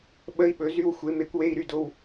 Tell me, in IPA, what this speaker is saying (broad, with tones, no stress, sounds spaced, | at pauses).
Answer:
ɓ ə˧˥˧ i̯ ɓ ɵ˩˥ z y˧˥˧ w xʷ e˩˥ m e˩˥ kʷ w e˧˥˧ i̯ ɾ y˧˥˧ d o˧˥˧ w